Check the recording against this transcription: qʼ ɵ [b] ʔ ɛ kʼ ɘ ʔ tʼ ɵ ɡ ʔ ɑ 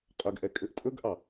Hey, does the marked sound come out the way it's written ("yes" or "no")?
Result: no